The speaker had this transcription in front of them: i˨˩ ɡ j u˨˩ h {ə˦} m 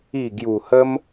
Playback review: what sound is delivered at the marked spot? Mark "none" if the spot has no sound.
ə˦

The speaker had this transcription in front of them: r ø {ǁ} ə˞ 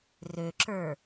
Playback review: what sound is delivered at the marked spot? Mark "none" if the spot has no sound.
ǁ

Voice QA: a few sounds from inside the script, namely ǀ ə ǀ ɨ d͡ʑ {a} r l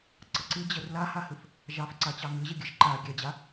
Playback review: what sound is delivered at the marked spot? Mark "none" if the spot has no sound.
ə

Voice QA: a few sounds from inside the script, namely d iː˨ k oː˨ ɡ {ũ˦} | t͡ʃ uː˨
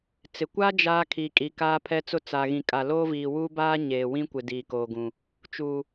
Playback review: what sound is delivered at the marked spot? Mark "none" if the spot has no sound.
ũ˨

